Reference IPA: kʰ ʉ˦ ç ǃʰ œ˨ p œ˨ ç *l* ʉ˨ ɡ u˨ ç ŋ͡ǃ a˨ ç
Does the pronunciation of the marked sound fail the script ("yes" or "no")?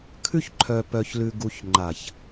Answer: no